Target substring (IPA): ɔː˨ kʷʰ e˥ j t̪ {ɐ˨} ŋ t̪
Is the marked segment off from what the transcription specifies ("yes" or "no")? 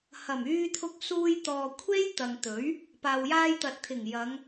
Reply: no